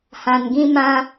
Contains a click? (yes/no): no